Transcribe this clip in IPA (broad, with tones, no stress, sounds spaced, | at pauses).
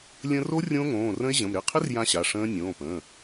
lʲ ə̃˦˥ r o˦˥ rʲ õː˦˥ ŋ õː˩˧˩ r ə̃˦˥ e̯ ʑ ə̃˩˧˩ m ɾ ɪ˩˧˩ qʰ ɪ˦˥ r j ã˦˥ ɕ a˩˧˩ ʂ ə̃ː˦˥ nʲ õː˩˧˩ p ə̃ː˩˧˩